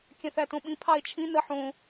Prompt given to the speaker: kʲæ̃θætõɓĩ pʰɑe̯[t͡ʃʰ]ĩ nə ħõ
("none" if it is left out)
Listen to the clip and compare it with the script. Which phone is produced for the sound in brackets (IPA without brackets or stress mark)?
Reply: t͡ʃʰ